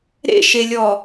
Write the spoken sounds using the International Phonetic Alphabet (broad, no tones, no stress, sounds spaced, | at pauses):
ɾ ḛ ʃ e lʲ ɔ